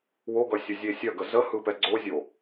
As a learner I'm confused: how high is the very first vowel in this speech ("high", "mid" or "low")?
mid